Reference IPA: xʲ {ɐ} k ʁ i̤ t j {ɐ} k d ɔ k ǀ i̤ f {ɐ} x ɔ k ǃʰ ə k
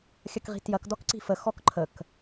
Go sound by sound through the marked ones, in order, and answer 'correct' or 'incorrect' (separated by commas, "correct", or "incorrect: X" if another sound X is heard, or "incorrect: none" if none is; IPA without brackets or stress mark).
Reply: correct, correct, incorrect: ə